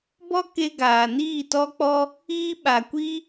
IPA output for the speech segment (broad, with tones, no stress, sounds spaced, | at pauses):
b ɔ˦ k e˧ ɡ aː˨ n iː˦˨ t ɔ˧ k͡p ɔ˧ | iː˧ ɓ a˨ kʷ i˦